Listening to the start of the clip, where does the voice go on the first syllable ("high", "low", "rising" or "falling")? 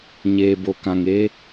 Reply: low